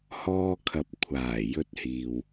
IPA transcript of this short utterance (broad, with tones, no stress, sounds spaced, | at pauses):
h ɔː˧ kʰ ɐ˨ p̚ kʷʰ aː˨˩ j ɵ˧ t̚ h iː˨ w